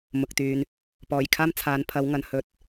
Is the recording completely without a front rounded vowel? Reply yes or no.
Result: no